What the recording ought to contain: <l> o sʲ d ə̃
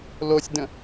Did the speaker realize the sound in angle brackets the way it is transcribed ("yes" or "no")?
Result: yes